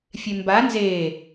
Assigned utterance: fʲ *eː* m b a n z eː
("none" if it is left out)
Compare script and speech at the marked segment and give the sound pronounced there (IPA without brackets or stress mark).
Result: e